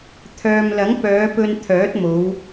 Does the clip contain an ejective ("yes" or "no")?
no